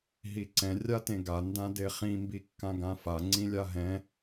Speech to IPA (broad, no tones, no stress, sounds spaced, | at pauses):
ɦ i ǀ ɛ̃ rʲ a t ẽ ɡ a n d ã d e χ ĩ m b i kː ã ɡ ã f a ŋ͡ǀ ĩ lʲ a ɦ ɛ̃